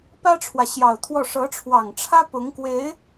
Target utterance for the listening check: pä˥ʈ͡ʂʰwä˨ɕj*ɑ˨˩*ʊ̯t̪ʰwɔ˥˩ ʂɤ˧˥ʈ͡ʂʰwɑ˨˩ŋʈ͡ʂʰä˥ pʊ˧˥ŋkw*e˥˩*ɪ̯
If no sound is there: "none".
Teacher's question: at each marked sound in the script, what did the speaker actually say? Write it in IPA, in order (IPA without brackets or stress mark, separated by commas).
ɑ˨˩, e˧˥